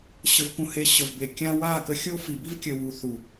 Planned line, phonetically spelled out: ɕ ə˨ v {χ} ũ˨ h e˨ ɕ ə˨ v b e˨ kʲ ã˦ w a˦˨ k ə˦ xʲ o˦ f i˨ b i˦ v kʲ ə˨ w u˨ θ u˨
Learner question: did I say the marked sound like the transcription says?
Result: no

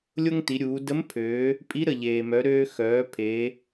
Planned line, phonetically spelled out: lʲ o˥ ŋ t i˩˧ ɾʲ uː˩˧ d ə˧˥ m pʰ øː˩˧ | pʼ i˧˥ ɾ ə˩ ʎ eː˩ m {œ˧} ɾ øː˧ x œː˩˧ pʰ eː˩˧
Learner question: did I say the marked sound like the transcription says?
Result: no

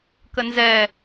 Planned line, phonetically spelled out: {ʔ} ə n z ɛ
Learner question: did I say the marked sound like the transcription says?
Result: no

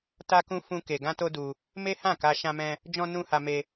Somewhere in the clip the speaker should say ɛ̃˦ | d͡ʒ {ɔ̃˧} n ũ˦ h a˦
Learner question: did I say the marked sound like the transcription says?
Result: no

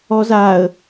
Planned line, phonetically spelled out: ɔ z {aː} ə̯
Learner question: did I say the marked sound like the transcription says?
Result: yes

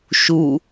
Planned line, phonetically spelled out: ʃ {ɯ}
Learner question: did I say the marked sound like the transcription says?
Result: no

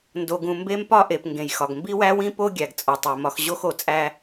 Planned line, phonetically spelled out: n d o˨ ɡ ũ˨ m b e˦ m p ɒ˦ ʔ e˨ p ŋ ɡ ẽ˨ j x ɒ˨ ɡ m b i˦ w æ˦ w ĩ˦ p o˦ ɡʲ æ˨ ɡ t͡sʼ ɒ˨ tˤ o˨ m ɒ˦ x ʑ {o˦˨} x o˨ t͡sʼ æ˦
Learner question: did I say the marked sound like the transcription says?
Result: no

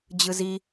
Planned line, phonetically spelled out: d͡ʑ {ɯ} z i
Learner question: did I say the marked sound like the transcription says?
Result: yes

